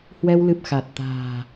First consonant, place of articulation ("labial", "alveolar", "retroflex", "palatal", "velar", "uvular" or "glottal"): glottal